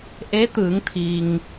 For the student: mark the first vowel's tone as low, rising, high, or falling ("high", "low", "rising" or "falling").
rising